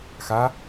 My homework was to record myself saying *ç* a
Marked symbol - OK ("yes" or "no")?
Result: no